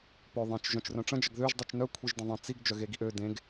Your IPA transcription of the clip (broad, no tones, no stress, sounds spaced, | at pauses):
p œ ðˤ ẽ t͡ʃ ʒ œ̃ t͡ʃ r œ̃ ʈ͡ʂ ə̃ d͡ʒ ə ɡ ð ø ʒ dˤ u t͡ʃ n œ kʷʰ i ʒ d ə̃ ðˤ ə̃ t͡s i ɡ d͡ʒ œ ɣ e ɡ i ʔ ø d ẽ ɡ